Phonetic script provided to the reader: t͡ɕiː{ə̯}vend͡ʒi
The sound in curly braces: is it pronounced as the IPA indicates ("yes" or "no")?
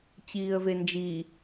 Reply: yes